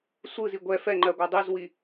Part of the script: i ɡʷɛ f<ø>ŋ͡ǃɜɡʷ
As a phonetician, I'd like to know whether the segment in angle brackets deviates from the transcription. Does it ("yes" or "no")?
yes